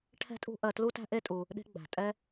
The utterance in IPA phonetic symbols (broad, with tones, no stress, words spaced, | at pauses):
ʈʰɛ̤˦tʼṳ˦ʔɜ˧ tlu˦tæ̤˦ ʔe˦tʼu˧ | ɗe̤˦ ɡ͡bæ̤˨tʼɛ˦